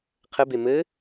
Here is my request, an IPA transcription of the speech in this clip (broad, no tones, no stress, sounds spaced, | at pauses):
qʰ ɘ b e m ɘ